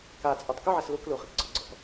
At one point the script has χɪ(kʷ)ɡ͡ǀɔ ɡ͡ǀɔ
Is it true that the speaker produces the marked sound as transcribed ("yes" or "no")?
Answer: no